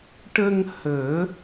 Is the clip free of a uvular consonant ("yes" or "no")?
yes